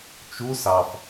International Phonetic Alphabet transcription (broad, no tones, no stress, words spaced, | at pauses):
t͡ʃu sɑf